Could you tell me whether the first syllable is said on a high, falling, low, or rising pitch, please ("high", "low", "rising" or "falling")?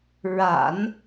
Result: low